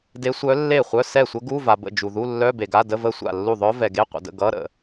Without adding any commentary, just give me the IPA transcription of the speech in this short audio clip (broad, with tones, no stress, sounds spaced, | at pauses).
d e˧˥ sʷ œ˧˥ lː e˥˩ χʷ œ˧˥˧ s ɛ˥˩ sʷ ə˧˥ ɡ u˧˥˧ v a˨ b ə̰˥˩ d͡ʒ u˨ ð u˧˥˧ lː œ˧˥˧ b e˨ ɡ a˧˥˧ d ə˧˥˧ v ə˥˩ sʷ a̰˥˩ lː u˥˩ ðˤ œ˧˥ v ɛ˨ ɡ e˧˥˧ qʷ ə̰˨ d ə̰˥˩ ɡ ʌ˧˥˧ ɾ ə̰˨